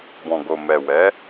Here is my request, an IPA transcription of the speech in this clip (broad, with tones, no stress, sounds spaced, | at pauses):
b ɔ̃˨ ɡ o˨ m ɛ˨ w ɛ˨˦